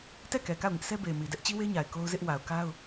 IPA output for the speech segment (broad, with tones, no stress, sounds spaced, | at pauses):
t ɛ˦˨ k ɛ˨ k a˦˨ ʊ̯ ŋ ɪ˦ ʔ sʰ ɛ˦ b e˨ ɪ̯ m i˨ d ɛ˦ ʔ t͡ɕ i˦ w e˦ ɲ a˨ ɪ̯ k o˦ ʊ̯ z ɪ˦ ʔ w a˨ ʊ̯ k a˦ ʊ̯